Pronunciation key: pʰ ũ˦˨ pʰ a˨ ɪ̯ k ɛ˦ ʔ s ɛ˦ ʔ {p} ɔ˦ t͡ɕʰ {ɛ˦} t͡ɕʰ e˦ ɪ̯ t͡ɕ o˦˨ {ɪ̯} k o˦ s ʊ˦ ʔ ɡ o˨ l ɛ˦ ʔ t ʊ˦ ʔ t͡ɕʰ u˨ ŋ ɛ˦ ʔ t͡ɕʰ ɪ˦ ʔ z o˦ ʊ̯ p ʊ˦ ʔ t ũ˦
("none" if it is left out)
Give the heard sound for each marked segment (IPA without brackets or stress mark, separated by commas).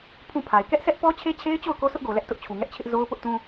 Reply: p, e˦, ʊ̯